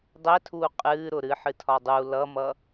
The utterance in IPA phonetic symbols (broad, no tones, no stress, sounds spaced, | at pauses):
dˤ ɛ tʰ uː qʼ ɨː ɾ ʊ ɾ ɨ ħ ɨ tʰ ɒ dˤ u l ʌ m ʌ